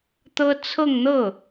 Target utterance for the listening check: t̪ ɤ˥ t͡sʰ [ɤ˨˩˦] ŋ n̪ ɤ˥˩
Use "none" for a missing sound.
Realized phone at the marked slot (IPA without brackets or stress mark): ɤ˥˧